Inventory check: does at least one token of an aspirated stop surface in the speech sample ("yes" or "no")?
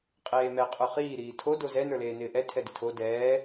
yes